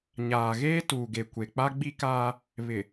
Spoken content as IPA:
ɲ aː˨ ɣ eː˦ t uː˨ ɡ e˨ kʷ e˨ k͡p a˦ ɡ͡b i˦ k aː˦ | β ɪ˨

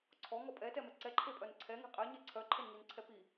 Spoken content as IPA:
ǀʰ ɔ ŋ ɔ pʼ ɛ t ɛ m ɛ ǀ ɛ ǃʰ e pʼ œ n ǀʰ ɛ ŋ e̤ qʼ ɛ ɲ ɛ ǀʰ œ ǃʰ e n ŋ i n ǀʰ ɛ p i

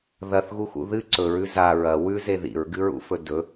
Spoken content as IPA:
ð ɐ θ ɣ u x ṵ ð ɨ ǀ ɵ ɹ ʉ z a ɹ ɐ w ʉ z e ð ḭ ɹ ɡ ɨ ɹ ṵ f ɵ d ɵ

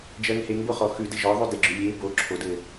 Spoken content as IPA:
d͡ʒ ɜ ŋ h e ŋ b o χ ɔ x ʉ d ɘ ʒ ɔ ðˤ ʉ d e ɡ͡ǁ ʉ lʲ e b o ǁʰ o d ɘ

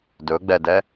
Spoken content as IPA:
d ɵ ɡ͡b ɛ d ɛ

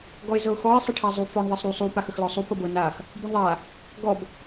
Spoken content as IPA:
ɡ ɔ ɪ̯ z ɤ ʊ̯ x ɔ ɪ̯ sˤ ə ʈʰ a zˤ u f ɔ ɳ ðˤ ɤ sˤ ɾ u sˤ u p a x ə x l ɔ sˤ u p ɤ b ɤ n a x | b u ɳ ðˤ a | ɡ ɔ b

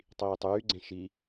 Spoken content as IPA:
tˤ iː tˤ yː ɡ͡ǀ ẽ ʃ i

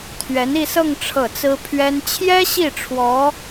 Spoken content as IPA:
t̪ʰ ɥ ɛ˧˥ n i˥˧ s ɤ˥˧ ŋ ʈ͡ʂʰ ɤ˥˩ t͡s ɹ̩˥ pʰ ɥ ɛ˥ n t͡ɕʰ j ɛ˥ ɕ i˥˩ ʈ͡ʂʰ w ɔ˧˥

